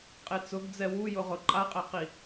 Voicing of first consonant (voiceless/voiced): voiceless